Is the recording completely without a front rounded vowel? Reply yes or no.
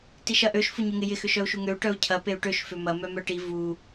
no